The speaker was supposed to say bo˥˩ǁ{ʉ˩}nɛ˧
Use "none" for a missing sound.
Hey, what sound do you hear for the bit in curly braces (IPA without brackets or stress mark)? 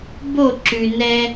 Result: ʉ˩